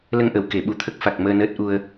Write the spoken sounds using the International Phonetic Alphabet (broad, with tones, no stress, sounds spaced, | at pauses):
l ə˧ ŋ ʔ ə˨˩˨ w k e˨˩˦ ɓ u˨˩˦ t̪ʰ ə˦˥ k̚ f a˨˩ k̚ m əː˧ n əː˦˥ t̚ ʔ u˧ ə̯